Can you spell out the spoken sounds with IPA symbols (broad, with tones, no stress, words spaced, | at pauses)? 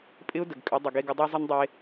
pʼɪ˦ʊ̯də˨ɡkʼʏ˨˦ dˤɪ˨ɡe˦ɡə˦ dˤe˦zˤɪ˦ndˤe˦